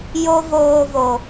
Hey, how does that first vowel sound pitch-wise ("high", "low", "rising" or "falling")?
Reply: high